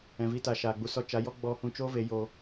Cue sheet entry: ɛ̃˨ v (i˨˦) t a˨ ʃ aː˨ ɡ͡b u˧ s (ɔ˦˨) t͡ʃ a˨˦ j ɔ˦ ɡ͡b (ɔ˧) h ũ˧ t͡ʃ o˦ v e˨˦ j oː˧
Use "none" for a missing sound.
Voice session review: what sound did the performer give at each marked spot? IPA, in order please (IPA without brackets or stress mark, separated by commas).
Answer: i˧, ɔ˧, ɔ˧